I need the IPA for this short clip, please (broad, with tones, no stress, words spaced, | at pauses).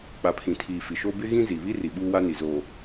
k͡pa˨pʰĩ˨tʰiː˨ fi˨ʃo˦ bɪ˦ ɣĩ˦zi˨βi˦ ri˨ɓuː˦ wa˦ni˨zoː˨